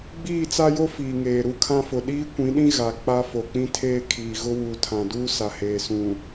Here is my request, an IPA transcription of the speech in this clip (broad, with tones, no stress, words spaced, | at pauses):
ɡ͡biː˦˨t͡sa˦jo˦ fiː˨ŋeː˨ ɾu˦˨kʰã˦fʊ˨ ɗiː˦kʷĩ˨˦ɗĩ˦ ɣa˨k͡pa˦ fo˨k͡pĩ˦tʰeː˦kʰiː˨ ɣʊ˦wuː˨tʰã˨duː˦ sa˨heː˨sũ˨